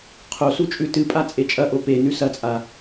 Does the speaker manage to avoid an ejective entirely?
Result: no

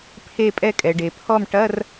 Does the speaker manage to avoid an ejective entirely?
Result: no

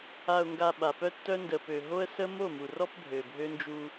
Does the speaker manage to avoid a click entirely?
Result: yes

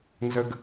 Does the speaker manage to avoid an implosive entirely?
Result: yes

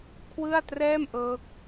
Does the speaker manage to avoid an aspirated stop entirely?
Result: no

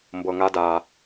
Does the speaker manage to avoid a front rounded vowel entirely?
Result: yes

